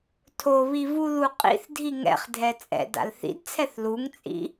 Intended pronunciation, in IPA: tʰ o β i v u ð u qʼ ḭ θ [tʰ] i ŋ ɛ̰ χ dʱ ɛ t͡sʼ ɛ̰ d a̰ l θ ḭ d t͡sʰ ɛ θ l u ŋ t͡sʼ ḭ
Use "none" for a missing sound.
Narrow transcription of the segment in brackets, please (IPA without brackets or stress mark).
dʱ